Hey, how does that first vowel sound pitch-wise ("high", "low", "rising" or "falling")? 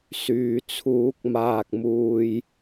low